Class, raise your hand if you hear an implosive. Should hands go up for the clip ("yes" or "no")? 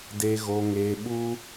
yes